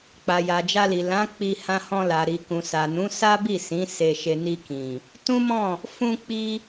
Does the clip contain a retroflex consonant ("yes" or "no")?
no